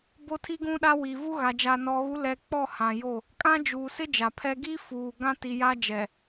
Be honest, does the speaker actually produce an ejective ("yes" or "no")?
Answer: yes